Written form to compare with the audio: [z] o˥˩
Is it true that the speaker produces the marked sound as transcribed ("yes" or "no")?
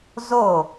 yes